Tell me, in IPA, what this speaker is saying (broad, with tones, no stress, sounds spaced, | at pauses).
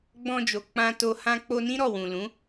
ɡ͡b ɔ̃˧ d͡ʒ o˨ k͡p ã˧ t o˧ h ã˦ k͡p o˧ n ĩ˦ ɾ ɔ˦˨ w ũ˨ l ũ˨˦